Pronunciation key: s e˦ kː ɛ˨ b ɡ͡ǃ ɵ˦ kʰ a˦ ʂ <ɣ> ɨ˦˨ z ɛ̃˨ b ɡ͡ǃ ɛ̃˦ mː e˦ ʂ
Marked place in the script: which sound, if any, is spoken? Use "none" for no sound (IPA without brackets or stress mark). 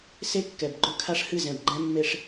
h